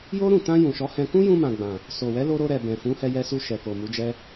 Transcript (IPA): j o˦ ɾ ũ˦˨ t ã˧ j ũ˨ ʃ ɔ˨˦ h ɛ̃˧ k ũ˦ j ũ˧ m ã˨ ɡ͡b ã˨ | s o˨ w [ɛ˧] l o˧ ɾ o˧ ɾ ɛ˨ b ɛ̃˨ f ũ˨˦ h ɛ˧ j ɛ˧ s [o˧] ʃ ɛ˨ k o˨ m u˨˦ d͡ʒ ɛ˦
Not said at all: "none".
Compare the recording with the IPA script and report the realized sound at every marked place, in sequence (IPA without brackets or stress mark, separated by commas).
ɛ˨˦, u˧